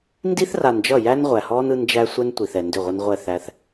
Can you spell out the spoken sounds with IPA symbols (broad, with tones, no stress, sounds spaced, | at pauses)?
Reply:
n d i˦ θ r a˨ n d͡ʒ ʌ˦˨ j æ˦ n ʁʷ æ˨ h ɔː˦ n ɯ˦ n d͡ʒ æ˦ sʷ ɛ˦ n tʷ i˨ θ ɛ˨ n d ʏ˦˨ ʁʷ ʌ˦ n ʁʷ ɛ˦˨ θ æ˦ θ